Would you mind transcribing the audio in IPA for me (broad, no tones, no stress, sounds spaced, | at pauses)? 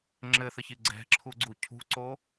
ŋ͡ǁ ɘ θ ə ç i ɡ͡ǀ ɛ̤ ǁʰ u ɡ͡ǀ u cʰ ṳ ǀ o